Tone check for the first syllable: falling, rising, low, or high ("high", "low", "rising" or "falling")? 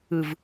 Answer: low